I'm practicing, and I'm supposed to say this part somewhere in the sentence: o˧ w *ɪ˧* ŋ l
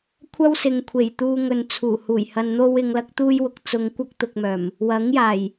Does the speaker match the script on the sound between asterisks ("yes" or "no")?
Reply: no